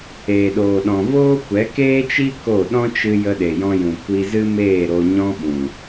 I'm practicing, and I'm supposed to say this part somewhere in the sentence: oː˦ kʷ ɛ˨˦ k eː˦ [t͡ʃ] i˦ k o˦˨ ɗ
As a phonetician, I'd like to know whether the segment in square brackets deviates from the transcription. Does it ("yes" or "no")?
no